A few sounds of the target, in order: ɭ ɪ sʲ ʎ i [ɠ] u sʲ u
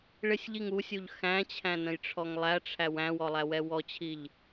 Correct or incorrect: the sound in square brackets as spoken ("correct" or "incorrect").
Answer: incorrect